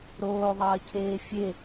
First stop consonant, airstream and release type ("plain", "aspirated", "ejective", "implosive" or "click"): aspirated